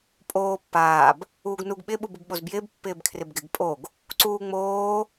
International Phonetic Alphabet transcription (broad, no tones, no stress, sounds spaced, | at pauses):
pʼ oː pː aː b | uː ɡ n u ɡ ɓ ɪ ɓ u b u b ɓ o z b j ɪː b pː ɪː b kʰ r ɪ b ɡ ɪ ɡ pʼ o ɡ | ǀ uː ŋ͡m oː